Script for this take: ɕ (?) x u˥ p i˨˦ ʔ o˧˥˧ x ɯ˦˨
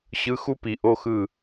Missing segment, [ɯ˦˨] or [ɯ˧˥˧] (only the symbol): ɯ˧˥˧